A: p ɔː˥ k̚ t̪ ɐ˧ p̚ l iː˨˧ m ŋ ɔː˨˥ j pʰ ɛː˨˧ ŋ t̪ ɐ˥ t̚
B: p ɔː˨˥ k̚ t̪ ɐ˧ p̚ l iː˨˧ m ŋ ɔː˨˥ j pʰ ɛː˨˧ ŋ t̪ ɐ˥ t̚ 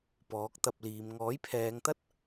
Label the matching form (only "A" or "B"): B